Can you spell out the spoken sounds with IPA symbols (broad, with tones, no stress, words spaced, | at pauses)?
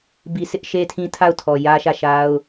bi˨sɪ˦ʔ ʃe˦tʰĩ˦tʰa˦˨ʊ̯tʰɔ˨ jä˦ʃä˦˨ʃa˦ʊ̯